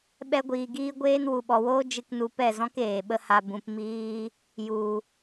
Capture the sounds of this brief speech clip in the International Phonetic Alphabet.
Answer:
ɓ ɛ˦ ɡʷ iː˧ ɡ iː˦ ɡʷ eː˦ n w u˨ ɓ ɔ˨ w oː˦ d͡ʒ ɨ˧ k n u˧ p ɛ˦˨ z ɔ̃˦ k eː˨ ɓ ə˦ h a˧ b ũ˨ p m iː˧ | j u˨

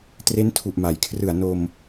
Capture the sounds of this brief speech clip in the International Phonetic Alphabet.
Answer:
t r e˦˥ n tʰ u˨˩ ʔ m a˩˦ j kʰ r ɯ˨˩ a̯ n o˧ m

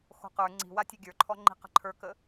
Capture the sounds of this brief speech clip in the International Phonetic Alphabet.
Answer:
x o̤ q ə˞ ŋ͡ǀ i̤ w a tʲ ɵ ɡʲ ə˞ ǃʰ ɔ ŋ͡ǃ i̤ q ə̤ ǃʰ ə˞ k ə

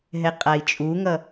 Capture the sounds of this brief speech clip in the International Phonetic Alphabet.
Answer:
ɦ ɛ qʼ a i̯ t͡ʃʼ u ŋ ʌ

